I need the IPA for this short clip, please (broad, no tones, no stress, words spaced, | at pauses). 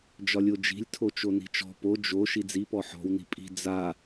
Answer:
d͡ʒɒlʲod͡ʒi̤lʲ tʰot͡ʃoni̤t͡ʃɔ̤ po d͡ʒo ʃid͡zi pɔħɔ̤w ni̤pʼi̤ d͡za